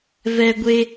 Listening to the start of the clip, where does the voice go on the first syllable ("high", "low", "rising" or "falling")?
high